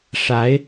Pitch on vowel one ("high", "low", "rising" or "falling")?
rising